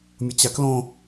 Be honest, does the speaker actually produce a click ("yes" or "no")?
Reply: no